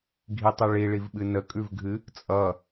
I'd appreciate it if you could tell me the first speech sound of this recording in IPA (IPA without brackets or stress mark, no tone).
ɡʱ